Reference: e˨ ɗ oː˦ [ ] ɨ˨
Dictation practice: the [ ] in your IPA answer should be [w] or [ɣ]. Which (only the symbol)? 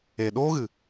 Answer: ɣ